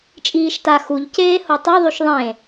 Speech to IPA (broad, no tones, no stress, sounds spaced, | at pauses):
t͡ʃʼ iː ʃ t a x u ʎ c eː h o tˤ o ðˤ y ʃ ðˤ ẽ